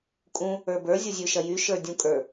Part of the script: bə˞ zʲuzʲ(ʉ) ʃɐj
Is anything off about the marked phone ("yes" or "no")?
no